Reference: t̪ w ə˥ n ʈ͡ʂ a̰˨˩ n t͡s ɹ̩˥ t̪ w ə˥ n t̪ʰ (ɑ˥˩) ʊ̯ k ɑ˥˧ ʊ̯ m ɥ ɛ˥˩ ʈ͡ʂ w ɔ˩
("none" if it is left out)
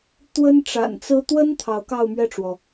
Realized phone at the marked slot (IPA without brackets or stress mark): ɑ˧˥